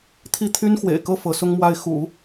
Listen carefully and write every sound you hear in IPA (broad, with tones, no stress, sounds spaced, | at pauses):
t̪ʰ i˥˩ t̪ʰ y˥ n x w ḛ˨˩ ɪ̯ k ɤ˥˩ f ɤ˧˥ s ʊ˥ ŋ m w a˥˩ ɪ̯ x ṵ˨˩˦